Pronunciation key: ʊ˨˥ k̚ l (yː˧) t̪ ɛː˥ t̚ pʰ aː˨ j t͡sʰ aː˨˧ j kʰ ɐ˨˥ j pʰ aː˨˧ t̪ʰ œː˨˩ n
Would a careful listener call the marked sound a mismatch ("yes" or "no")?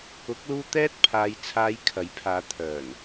yes